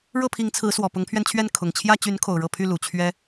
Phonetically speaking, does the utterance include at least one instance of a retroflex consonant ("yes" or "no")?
yes